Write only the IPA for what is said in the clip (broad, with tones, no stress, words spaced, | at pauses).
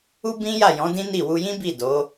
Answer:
u˦ bĩ˦ja˦˨jɔ̃˨˦dĩ˦ ni˦˨ wu˧jĩ˦bi˦˨ do˨˦